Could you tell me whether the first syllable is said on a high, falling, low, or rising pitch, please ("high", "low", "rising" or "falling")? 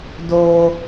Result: high